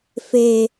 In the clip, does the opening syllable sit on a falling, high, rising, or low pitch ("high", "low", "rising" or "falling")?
low